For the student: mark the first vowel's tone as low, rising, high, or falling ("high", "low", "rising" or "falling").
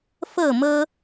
falling